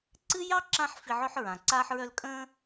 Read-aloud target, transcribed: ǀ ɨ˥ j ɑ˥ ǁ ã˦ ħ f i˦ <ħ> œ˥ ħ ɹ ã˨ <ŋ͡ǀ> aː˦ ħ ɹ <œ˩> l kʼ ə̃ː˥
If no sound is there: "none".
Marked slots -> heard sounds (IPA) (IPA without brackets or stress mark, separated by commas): ʕ, ǀ, œ˦